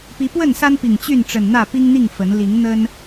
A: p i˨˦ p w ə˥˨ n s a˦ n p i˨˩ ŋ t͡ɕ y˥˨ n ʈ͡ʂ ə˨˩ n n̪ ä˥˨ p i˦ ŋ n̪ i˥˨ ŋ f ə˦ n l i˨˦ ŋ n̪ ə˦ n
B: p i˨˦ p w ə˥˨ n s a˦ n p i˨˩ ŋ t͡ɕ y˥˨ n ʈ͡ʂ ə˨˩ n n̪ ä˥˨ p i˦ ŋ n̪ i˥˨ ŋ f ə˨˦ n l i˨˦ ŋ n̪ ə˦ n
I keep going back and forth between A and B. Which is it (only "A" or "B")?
B